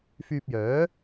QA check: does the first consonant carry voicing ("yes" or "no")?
no